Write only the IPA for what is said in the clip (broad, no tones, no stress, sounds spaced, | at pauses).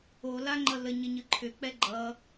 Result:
o l a ŋ͡ǃ ʌ l ə ɲ ə ɲ ɯ ǃʰ ʏ k͡p ɛ ɡ͡ǃ ʌ